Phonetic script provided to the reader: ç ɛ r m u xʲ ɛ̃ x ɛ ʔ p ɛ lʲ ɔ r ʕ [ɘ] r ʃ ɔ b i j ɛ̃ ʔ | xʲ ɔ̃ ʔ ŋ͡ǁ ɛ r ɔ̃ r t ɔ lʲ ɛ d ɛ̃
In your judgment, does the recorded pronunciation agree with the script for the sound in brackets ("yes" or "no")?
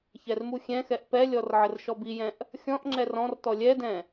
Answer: yes